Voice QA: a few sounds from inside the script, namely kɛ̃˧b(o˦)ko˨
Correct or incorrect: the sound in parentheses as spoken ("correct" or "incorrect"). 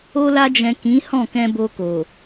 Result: incorrect